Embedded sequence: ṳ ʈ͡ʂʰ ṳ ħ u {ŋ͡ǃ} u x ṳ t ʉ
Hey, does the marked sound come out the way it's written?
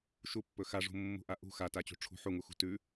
no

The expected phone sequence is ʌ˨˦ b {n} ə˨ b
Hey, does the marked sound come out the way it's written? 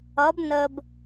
yes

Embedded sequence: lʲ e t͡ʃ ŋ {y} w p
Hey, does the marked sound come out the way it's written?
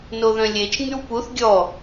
yes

